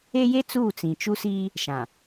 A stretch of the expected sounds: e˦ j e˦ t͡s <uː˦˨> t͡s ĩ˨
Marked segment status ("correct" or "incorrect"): correct